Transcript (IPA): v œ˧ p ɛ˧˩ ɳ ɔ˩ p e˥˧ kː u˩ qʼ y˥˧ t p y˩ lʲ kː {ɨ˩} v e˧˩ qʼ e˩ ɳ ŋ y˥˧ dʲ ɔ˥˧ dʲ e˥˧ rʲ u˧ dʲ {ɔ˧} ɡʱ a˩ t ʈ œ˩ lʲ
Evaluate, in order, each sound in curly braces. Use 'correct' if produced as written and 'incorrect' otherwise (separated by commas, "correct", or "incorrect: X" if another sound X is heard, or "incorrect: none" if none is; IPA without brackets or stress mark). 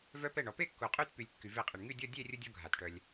incorrect: y˩, correct